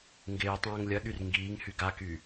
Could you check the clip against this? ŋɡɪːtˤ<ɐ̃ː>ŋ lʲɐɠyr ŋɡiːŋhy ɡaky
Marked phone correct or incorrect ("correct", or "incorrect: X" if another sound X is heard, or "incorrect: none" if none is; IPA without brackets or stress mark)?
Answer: correct